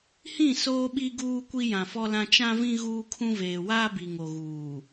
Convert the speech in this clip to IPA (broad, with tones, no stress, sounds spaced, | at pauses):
h ĩ˦˨ s oː˦ ɓ i˦ ɡ uː˦ kʷ i˦ j ã˨ f ɔ˦ l ã˦ t͡ʃ ã˦ v ĩ˦ ɣ uː˦ kʰ ũ˦ v eː˨ w aː˦ b i˨ ŋ o˨ ɣ uː˨